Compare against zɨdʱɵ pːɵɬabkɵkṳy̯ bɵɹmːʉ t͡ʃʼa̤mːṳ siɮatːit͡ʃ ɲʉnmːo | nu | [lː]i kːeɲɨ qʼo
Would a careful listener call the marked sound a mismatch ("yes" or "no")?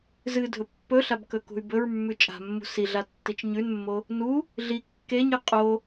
yes